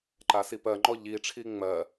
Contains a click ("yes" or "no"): yes